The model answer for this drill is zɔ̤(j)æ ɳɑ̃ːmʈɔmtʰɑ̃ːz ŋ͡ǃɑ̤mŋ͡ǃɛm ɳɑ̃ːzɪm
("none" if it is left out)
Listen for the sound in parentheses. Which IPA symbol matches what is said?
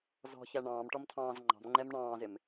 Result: ç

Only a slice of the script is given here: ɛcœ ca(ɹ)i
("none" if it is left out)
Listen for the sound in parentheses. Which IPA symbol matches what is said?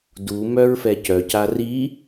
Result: r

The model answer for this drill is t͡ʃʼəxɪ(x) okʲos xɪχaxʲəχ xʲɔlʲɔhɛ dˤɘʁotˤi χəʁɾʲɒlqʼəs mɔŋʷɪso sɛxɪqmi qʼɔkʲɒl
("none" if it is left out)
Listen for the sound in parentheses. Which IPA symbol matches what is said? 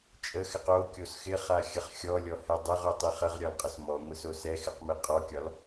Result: q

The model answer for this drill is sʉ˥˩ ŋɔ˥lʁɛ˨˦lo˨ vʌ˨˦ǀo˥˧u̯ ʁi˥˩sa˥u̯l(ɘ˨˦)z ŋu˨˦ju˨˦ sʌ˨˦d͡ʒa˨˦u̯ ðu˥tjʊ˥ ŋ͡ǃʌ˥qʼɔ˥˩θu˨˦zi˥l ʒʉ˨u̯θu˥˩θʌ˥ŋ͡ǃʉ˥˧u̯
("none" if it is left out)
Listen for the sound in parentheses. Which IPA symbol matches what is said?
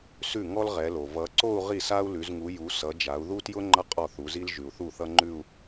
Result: ʉ˨˦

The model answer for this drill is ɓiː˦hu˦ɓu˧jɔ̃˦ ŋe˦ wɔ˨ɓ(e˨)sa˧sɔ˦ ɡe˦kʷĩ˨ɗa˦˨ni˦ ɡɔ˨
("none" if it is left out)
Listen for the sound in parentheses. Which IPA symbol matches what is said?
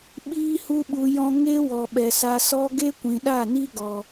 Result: ɛ˨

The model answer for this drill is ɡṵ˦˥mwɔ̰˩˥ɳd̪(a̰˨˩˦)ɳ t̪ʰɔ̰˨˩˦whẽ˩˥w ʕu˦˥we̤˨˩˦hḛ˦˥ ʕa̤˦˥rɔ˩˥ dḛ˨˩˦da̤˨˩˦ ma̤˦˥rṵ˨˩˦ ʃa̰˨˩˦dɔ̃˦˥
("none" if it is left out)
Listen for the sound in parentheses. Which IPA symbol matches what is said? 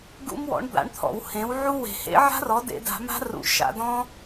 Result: a̰˩˥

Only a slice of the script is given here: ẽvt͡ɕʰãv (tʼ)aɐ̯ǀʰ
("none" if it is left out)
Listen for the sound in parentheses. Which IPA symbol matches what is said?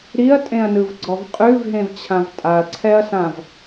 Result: tʼ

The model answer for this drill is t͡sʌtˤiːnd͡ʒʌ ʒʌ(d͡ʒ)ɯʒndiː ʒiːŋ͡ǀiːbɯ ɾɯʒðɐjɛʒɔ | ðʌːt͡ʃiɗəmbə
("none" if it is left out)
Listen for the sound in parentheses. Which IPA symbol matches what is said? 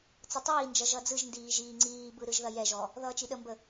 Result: d͡z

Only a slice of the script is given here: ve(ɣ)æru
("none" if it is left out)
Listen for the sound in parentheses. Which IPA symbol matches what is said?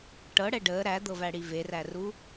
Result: r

